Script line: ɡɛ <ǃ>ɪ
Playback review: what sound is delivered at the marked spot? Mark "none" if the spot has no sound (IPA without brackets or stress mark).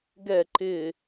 ǃ